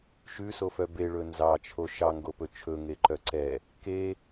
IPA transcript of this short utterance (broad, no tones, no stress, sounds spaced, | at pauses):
ʃ ʉ s o f œ b e ɭ ɵ n z ɑ t͡ʃʰ o ʃ ɑ ŋ ɡ o p ɵ t͡ʃʰ ɵ ŋ e ǃ œ ǀ ɛ | k e